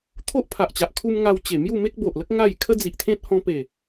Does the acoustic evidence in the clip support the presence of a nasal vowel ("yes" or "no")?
yes